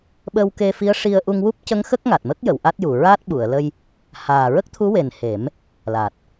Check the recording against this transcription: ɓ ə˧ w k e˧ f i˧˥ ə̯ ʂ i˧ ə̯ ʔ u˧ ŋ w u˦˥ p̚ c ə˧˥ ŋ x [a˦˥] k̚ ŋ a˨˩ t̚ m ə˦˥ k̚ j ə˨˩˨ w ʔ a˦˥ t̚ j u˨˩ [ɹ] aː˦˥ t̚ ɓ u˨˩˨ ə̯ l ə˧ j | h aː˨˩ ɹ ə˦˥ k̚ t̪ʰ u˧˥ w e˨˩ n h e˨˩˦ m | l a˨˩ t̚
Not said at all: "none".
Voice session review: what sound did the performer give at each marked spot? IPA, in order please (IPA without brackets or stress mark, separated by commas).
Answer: ə˦˥, ɹ